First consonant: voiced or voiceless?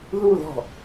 voiced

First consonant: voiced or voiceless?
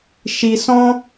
voiceless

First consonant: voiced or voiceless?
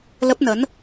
voiced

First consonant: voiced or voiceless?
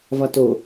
voiced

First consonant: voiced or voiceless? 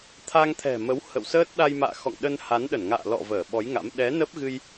voiceless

